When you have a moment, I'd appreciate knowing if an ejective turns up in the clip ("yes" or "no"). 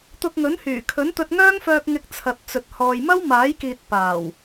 no